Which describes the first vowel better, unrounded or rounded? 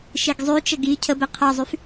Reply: unrounded